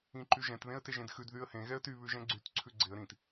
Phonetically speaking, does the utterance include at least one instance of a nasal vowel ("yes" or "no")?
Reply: yes